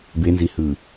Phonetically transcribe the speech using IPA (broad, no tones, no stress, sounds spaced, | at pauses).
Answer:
b e n z i h ɯː